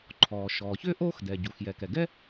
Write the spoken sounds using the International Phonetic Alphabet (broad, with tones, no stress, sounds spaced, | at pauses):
ǃʰ ɔː˩ ʃ ɔː˩ ç ʏː˥ ʔ oː˥ x d ɛ˩ ɟ u˩ x j ɛ˩ k ɛ˩ ɡ ɛ˥